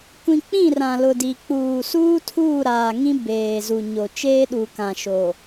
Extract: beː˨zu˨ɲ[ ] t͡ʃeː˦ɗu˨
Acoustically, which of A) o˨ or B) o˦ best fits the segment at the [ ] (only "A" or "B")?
A